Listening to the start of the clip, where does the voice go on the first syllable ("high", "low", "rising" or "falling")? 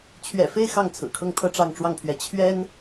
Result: low